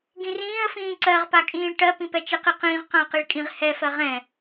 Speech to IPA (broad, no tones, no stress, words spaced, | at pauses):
ɡĩrĩːə̯fĩː ǀɜʁpakʼĩːɭ ʈɜpĩ pɛt͡ʃɪqiqĩːʁ qãə̯qiɭkʼĩʁ hɛfɜ ʁɛ̃